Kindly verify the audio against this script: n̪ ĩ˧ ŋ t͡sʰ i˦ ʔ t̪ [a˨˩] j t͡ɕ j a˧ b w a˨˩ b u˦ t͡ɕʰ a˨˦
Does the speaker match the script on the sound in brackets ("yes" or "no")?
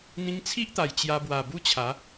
yes